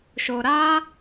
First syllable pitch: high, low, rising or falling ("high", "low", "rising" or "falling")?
low